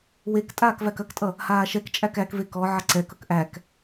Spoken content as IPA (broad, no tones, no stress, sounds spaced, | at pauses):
w e k tʼ aː k v æ k ɐ k tʼ ʌ | h aː ʃ ɛ k t͡ʃʼ æ k æ k v e k ɔ ʕ ɐ ǀ ɛ k ʌ k ʔ æ k